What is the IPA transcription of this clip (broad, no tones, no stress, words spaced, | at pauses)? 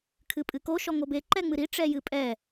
kʰɨpʼɨko ʃɔŋobe ǃɛŋ͡mɨɾi ʈ͡ʂɛjɨpʼɛ